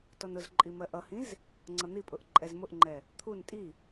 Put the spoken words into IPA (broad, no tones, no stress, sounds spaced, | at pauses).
t ɔ n ʊ z ǃʼ i m ɜ ʔ ʌ h ĩ z | ŋ͡ǀ ʌ n̪ i pʼ ʊ ʔ ǃʼ ɛ z m ʊ ʔ ŋ͡ǃ ɛ | t̪ʰ u n tʼ i